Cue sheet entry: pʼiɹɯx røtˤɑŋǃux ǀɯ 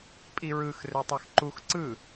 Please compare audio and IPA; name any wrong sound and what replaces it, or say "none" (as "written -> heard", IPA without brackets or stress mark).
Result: ŋ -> x